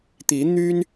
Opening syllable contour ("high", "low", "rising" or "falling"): rising